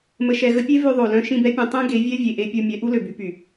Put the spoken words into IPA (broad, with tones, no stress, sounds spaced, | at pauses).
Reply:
m ə˨ ʃ ɛ˨ ɣ ə˧ pʲ e˦ v ø˧ ðˤ o˨ l œ̃˧ ʃ ĩ˦˨ b ɛ˦ pʲ œ̃˧ tˤ ẽ˦ ɡ e˨˦ vʲ ɛ˦ vʲ e˨ ʔ e˧ pʲ o˧ mʲ ɛ˨˦ ʔ u˦ l ø˨ b y˧ p y˨